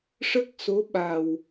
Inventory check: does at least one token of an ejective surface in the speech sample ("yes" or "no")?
no